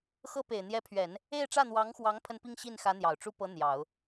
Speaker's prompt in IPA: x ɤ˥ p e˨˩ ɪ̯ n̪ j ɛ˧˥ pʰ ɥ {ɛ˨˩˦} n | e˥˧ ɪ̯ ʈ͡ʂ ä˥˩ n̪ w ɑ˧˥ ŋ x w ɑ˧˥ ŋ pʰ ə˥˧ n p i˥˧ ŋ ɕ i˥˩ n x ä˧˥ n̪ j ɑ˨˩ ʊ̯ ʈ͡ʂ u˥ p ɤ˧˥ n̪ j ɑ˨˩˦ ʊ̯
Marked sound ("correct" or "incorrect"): correct